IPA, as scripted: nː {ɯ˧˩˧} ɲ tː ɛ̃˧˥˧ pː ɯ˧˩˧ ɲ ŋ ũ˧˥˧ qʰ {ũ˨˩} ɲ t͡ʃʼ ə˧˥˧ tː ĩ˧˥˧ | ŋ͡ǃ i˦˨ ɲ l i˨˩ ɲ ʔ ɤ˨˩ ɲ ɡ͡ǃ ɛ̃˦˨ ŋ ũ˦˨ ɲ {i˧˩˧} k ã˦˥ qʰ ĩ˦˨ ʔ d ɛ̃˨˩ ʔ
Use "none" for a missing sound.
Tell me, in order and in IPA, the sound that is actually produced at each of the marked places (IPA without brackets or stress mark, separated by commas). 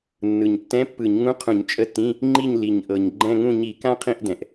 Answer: ɯ˨˩, ũ˧˩˧, i˧˩˧